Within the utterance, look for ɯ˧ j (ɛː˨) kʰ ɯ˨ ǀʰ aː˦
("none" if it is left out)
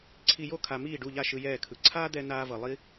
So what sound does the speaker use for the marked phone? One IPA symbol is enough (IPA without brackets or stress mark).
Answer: ɛː˦˨